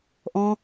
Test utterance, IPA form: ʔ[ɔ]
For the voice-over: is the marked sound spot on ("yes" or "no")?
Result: no